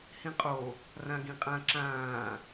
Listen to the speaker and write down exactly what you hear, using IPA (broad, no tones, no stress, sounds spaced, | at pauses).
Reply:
h ĩ qʼ o | r ã ɡ ĩ qʼ ã ǁ ãː